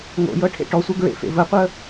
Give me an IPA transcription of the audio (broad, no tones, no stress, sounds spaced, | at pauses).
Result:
ŋ o̰ j ɤ ʈʰ ḛ ʈ ɔ sʷ ɛ ɡ ɹ ḛ f ḛ v ə qʷ ə